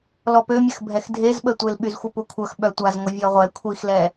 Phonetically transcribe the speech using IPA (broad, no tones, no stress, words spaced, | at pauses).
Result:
lɔpømʲəx bʱɛxdʱezɓətʷel ɓyzxʷəpukʷʰœx ɓœtʷazŋʷə vʲɔʁʷɛ kʷʰixlɛ